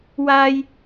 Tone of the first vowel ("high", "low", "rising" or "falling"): high